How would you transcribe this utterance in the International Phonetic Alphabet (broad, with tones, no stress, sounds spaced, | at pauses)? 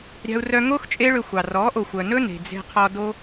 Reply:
ɾʲ ɑ̤˧ u̯ r œ˧ ŋ oː˦ x t͡ʃʼ e˦ ɭ ø˧ xʷ ɑ˨ r ɔː˨˦ ʔ o˨ xʷ œ˨ n ɵ˦ n e̤˨ d͡z e̤˧ qʰ ɔ˧ d o˧